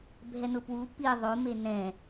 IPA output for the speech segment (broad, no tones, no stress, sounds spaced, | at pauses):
bʱ ɛ n ʊ p w u p i ðˤ o m e n ɛ̃